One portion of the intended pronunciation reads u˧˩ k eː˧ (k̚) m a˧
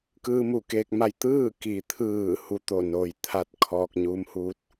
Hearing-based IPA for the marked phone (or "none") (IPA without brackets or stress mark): k̚